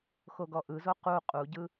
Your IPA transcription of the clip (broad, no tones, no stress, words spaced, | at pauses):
xoɡɔʔɯzo qu qʼuɟɯ